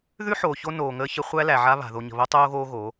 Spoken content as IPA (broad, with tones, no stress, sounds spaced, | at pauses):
ð ʉ˦ ħ oː˨ ç o˦ n oː˨ ŋ əː˦ ç ə˦ χʷ æ˦ l æ˨ ʕ a˦ β a̤˨ ð o˨ ɲ ə̤˨ β o˦ tˤ oː˦ ɣ oː˦ ɣ o˨˦